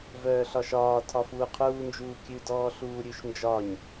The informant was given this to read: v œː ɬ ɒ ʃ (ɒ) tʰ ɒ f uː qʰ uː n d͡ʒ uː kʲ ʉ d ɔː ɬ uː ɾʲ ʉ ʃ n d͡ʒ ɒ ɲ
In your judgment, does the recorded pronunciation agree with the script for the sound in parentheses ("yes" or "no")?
no